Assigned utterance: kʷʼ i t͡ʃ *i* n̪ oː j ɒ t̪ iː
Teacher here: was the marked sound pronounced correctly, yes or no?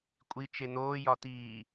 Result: no